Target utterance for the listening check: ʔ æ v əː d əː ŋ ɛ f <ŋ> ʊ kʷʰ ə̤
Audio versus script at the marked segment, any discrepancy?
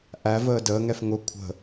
no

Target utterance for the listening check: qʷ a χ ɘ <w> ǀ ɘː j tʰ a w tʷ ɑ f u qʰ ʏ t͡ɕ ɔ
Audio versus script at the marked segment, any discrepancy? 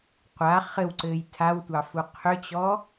no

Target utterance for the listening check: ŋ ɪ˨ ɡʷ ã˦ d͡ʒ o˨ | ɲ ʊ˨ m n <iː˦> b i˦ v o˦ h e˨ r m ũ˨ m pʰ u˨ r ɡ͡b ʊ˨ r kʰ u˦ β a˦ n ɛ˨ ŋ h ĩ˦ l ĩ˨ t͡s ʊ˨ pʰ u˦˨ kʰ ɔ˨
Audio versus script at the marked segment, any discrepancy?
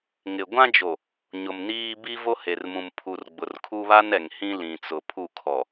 no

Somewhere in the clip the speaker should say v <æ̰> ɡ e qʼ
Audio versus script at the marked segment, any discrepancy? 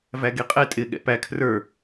yes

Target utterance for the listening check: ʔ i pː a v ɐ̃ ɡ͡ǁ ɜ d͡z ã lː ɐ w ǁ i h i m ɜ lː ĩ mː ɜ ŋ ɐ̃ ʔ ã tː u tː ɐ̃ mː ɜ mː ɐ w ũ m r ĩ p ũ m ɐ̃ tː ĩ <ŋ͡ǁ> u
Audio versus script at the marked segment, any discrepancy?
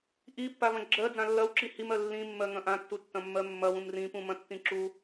yes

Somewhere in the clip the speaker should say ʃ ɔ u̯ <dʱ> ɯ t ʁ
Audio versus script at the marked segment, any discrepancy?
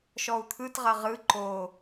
yes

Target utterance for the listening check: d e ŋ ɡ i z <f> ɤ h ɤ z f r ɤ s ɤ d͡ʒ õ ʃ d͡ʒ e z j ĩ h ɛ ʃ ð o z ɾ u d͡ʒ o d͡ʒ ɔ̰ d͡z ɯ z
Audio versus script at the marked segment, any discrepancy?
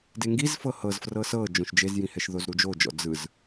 no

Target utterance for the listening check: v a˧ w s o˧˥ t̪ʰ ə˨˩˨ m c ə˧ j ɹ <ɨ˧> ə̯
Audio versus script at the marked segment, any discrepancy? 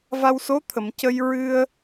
no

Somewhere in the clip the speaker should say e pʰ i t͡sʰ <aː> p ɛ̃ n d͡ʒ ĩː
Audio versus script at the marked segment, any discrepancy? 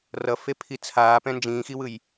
no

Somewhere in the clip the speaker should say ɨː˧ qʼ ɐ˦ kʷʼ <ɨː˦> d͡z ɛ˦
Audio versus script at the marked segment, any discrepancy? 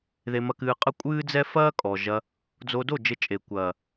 no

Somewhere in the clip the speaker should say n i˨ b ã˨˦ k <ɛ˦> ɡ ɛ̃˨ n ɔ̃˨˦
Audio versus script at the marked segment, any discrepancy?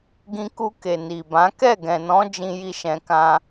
yes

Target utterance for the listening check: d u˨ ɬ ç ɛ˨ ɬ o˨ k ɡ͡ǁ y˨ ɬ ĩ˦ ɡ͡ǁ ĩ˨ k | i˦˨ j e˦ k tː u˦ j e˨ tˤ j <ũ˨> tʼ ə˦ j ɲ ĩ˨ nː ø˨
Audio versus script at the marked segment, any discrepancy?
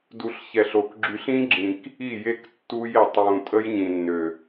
no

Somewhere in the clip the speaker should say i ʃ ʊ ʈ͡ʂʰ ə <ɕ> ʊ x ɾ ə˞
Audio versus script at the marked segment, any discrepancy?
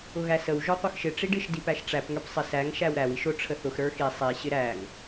yes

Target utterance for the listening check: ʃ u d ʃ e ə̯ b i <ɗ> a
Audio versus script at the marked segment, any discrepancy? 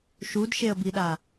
no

